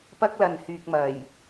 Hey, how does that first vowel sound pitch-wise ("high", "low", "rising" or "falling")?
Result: high